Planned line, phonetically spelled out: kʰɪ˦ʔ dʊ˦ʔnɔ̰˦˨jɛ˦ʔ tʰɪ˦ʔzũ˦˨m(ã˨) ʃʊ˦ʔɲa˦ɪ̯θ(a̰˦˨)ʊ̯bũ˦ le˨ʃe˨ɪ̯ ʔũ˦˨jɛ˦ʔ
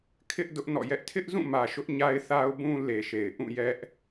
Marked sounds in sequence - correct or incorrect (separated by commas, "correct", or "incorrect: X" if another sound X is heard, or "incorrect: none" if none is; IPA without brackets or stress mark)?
incorrect: ä˨, incorrect: a˦